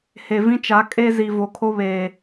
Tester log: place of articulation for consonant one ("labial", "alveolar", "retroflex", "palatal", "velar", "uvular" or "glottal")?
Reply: glottal